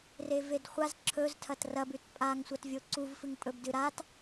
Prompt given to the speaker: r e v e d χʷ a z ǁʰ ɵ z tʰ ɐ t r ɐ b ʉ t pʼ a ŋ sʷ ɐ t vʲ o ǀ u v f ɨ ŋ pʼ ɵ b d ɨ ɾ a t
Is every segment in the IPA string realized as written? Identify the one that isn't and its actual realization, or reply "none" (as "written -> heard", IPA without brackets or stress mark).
none